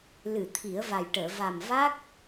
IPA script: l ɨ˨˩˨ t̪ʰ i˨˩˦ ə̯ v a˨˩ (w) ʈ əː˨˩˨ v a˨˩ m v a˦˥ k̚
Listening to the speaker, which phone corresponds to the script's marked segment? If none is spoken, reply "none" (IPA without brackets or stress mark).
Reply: j